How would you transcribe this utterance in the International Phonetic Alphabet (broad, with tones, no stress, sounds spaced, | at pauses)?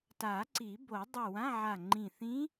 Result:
t a˨˩˦ ǀ i˨˩˦ b o˨˩˦ dˤ o˧˩ w ã˧˥˧ ʕ a˧˩ ŋ͡ǃ ĩ˧˩ θ ĩ˧˥